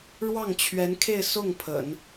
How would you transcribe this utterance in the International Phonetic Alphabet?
ɻwɑ˥˩ŋt͡ɕʰɥɛ˧˥nkʰe˥˧ɪ̯ sʊ˥˩ŋ pʰə̰˨˩˦n

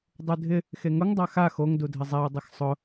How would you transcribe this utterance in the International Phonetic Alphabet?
dˤudʱɪ | xeŋʊŋ dˤaxa xoŋ dudʱɪzˤɛʊ̯ dˤɪxsˤʊ

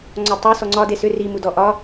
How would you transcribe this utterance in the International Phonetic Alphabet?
ŋ͡ǀɒtˤu sɔŋ͡ǀɒ desʏ ri mudɔʔɒ

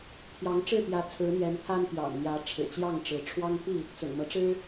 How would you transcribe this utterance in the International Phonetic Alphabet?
pʰjɑ˨˦ŋʈ͡ʂɻ̩˥˨ pjä˨˦ t͡sʰɹ̩˨˦n̪jɛ˨˦n pʰa˦npjɑ̰˨˩ŋn̪jä˨˦ ʈ͡ʂʰɻ̩˨˩t͡ɕjɑ˥˨ŋʈ͡ʂɻ̩˨˦ ʈ͡ʂʰwɑ˦ŋpi˥˨ | t͡sʊ̰˨˩ŋmɤ˨˦ʈ͡ʂɻ̩˦

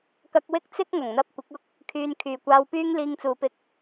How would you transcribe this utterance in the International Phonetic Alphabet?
kɐ˧k̚wɪ˥k̚ t͡sɪ˥k̚ ŋɐ˨˩ŋn̪ɐ˧p̚ kʷɪ˨˥k̚ʊ˥k̚ | kʰyː˨n kʰyː˨kʷaː˧wpyː˥ŋ liː˧ŋt͡suː˨pɪ˧k̚

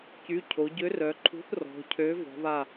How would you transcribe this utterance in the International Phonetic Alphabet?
cy˩˧˩ cʰo˩˧ ɟø˨˥rœ˩˧ǃʰṳ˨˥θ rɔ̤˩˧cʰø˨˥ vɔ̤˩˧βa˧˩

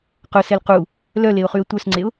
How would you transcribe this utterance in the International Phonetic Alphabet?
qʊsɛl qu | lœleʊ̯χyə̯ tʷœsŋ͡ǀeʊ̯

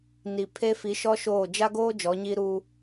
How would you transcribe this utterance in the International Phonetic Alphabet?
ni˨ pʰe˦ fi˨˦ʃɔ˦ ʃoː˦˨ d͡ʒa˦ɡoː˦ d͡ʒɔ˨˦ɲiː˦ɾuː˦

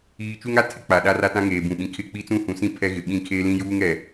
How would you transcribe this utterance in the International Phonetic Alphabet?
iː˦ t͡ʃu˦ŋa˦ tʰɪ˦k͡pa˨ ɗa˦ra˦tã˦ ŋeː˨bũ˨ɓĩ˨ kʰɪ˦˨ k͡pi˦t͡sũ˦hũ˨sĩ˦ pʰɛ˦ɣɪ˨ ɓĩ˦˨ kʰeː˦lĩ˦juː˦ŋɛ˨

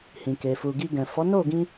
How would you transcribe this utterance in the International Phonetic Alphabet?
hĩ˨ke˨ fu˨ ɡi˧ɡɛ̃˨ fɔ˨˦no˦˨ɡĩ˧

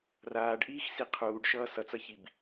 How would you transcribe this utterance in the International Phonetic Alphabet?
raːɖʔiːx siqʰuːɖʃʌː sʌt͡sʌçib

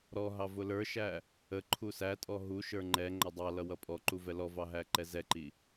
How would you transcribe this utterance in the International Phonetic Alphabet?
ɾɔɦɑ vʊlə˞ʃæ | ə ǃʰusætʼɔ ɦuʃə˞ ŋ͡ǃɛ ŋ͡ǃʌdˤɑlʌ wʌpʼɔǃu vɛlɔvɑ ɦæǃɛzɛǃi

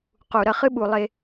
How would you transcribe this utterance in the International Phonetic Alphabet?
qu˨ ɾɐ˦˨χɨ˦ɓu˨ lˠe˦

